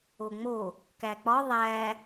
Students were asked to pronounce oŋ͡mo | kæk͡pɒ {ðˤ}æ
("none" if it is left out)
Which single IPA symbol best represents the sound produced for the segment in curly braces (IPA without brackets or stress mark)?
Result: ðˤ